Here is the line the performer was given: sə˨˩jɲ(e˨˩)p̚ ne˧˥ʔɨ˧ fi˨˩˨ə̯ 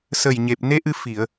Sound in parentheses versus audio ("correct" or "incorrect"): correct